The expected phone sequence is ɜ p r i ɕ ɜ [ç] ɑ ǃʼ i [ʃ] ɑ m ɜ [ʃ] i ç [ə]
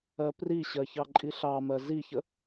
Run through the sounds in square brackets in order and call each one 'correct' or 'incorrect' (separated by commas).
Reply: correct, incorrect, incorrect, correct